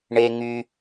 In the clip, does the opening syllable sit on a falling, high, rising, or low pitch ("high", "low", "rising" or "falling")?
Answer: high